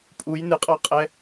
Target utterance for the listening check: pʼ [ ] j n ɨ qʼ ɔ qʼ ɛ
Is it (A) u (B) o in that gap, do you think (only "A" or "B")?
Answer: A